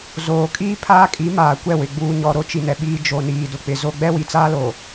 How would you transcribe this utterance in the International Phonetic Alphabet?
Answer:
z oː˨ kʼ iː˦ pʰ aː˦ kʼ i˨˦ m aː˨ kʷ ɛ˦˨ w ɪ˨ ɡ͡b uː˨ ɲ ɔ˨ ɾ o˨˦ t͡ʃ i˨ n ɛ˨ ɓ iː˨ d͡ʒ o˨ n iː˨ d ʊ˨ k͡p ɪ˨ z o˦ ɡ͡b ɛ˦ w i˨ t͡s aː˦ l oː˨

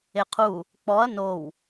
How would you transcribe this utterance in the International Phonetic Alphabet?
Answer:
e qʰ u | k͡p ɔ ɐ̯ n o w

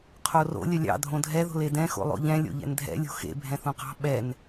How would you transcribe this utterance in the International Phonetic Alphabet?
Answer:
qʰ o r o̰ lʲ ə lʲ ɑ̰ dʱ õ dʱ ɛ ð o̤ l e d ɛ̃ x o̰ lˠ o̰ ʎ ɛ̃ lʲ o̰ ʎ ɛ̰ n dʱ ɛ̰ lʲ o̤ x ḛ bʱ ɛ̃ θ õ q ɑ̤ ɓ ɛ n

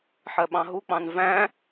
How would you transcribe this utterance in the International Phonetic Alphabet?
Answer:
ħ ɜ ɓ ɑ̃ ɦ u k͡p ɑ̃ n v æ̃

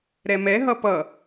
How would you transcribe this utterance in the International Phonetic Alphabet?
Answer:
ɾ ɛ m ɛ ɦ ʌ p ʌ

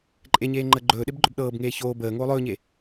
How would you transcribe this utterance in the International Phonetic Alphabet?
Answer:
ǃʼ e ɲ eː ŋ͡ǃ əː ɡ͡ǃ ɵː ɗ e b ɡ͡ǃ ɵ b ɗ ɤː b ŋ eː ç oː b əː ŋ oː lˠ ɵː ɲ e

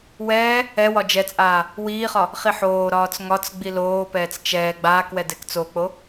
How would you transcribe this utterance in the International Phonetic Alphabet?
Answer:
w ɛː | ɛ w ɒ d͡ʒ ɛ t͡sʼ aː | w iː χ ɒ | χ i ħ oː ɾ ɒː t͡s ŋ ɒ t͡s ɡ͡b i l oː p ɛː t͡s t͡ʃ ɛː ɡ͡b aː k w ɛ d ɛ k t͡s o k͡p o

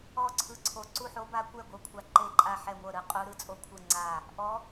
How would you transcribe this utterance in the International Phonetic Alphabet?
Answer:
ɔ˥˨ ǀʰ ɯ˧˥ ǀʰ o˧ ǀ u˥˨ ħ o˧˥ b a˧˥ kʷ ɛ˥˨ ɡʷ ɤ˧˥ kʷʰ a˧ ǃ e˥˨ ǃʼ a˥˨ ħ ɛ˥˨ ŋʷ ɤ˥˨ ɾ ɯ˧˥ qʼ u˧˥ ɾ ɯ˧˥ t͡sʼ o˥˨ kʷʰ ɯ˥˨ ŋ͡ǀ a˥˨ | ʔ ɔ˧˥

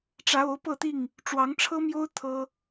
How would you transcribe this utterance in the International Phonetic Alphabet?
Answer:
ʈ͡ʂ ä˨˦ o˨˦ ʊ̯ p ɤ˥˨ t̪ i˥˨ ŋ | ʈ͡ʂ w ɑ˨˦ ŋ ʈ͡ʂʰ ɤ˦ m j o˦ ʊ̯ t̪ʰ ɤ˦

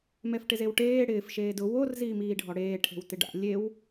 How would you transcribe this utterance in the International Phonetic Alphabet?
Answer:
m ɛ f ʈ ɪ z e w ʈ eː ɽ ɪː f ʃ eː d ʊ w o r z iː m iː ɖʱ ɔ ɽ eː ʈʰ e̤ w t ɪ ɖ a̰ lʲ e w

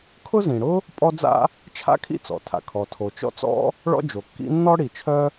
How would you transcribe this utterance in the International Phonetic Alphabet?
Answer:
kʰ ʊ˥ z ĩ˩ ɽ ʊ˥ | pʼ ɔ˥ d͡z a̰˥ | t͡ʃʰ a̰˥ kʰ ḭ˥ t͡s ɔ̰˩ tʰ a̰˩ kʰ ɔ˩ tʰ o˩ t͡ʃ ɔ̰˥ t͡s ɔ̰˥ | ɭ ɔ̰˥ d͡ʒ o˩ kː ḭ˥ nː ɔ˥ ɽ i˩ t͡ʃʰ œ˥

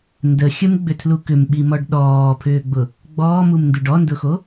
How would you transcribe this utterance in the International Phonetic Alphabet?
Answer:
n d ə xʲ ə m ɡ͡b ʏ tʰ l u k ʏ m ɓ i m ɔ ɖ ɗ ɔː pʰ ʏː ɡ͡b ʊ | ɡ͡b ɔː m u m n d u ɖ ɔ n d ʊ x o

